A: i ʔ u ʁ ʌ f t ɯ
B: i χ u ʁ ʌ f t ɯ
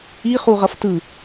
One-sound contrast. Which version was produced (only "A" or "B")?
B